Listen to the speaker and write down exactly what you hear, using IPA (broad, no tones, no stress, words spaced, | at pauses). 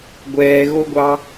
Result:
ɡʷɛːɣoɡʷɑ